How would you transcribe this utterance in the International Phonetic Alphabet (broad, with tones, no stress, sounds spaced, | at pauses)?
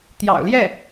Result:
t̪ j ɑ̰˨˩ ʊ̯ l j ɛ˥˩